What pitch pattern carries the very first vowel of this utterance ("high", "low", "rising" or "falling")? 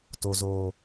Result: low